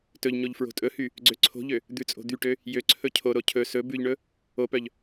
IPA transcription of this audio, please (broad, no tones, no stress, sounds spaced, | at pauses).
t ɵ ʎ ɲ o ʎ f ɹ o̤ tʼ ɵ h y | ɡ͡ǀ ø ǀʰ o̤ ʎ ø | d̪ ʉ t͡sʼ o̤ d̪ y ʈ ø | j ø ǀʰ ɵ cʰ o ɾ o cʰ ɵ s ɵ b ʉ ʎ ɳ ɵ | o p œ ʎ